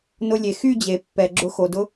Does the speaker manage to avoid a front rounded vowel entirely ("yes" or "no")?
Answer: no